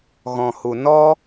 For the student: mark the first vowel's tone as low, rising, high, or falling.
low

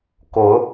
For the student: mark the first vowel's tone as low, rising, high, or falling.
rising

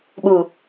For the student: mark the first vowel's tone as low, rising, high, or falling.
low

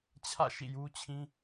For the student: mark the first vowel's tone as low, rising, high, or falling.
falling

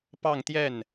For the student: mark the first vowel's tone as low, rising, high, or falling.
falling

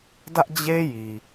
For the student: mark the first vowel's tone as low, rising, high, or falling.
high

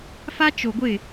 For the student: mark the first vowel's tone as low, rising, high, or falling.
high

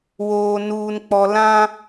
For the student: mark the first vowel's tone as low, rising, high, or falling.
low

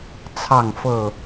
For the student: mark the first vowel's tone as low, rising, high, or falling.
falling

